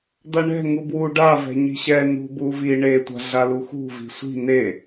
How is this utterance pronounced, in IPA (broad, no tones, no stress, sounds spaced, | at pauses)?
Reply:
d̪ a ɳ ɛ̤ ŋ u b w u ɖ a v ɛ̤ ɲ i̤ ɕ ɛ n ṳ b u v i ɳ e tʷ a̤ ɮ a l u x ṳ v i̤ sʷ i̤ n e